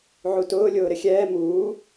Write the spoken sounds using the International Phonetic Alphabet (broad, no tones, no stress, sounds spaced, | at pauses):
ʕ u t ʊː lʲ ʊː ɾ ɪ xʲ ɛː m uː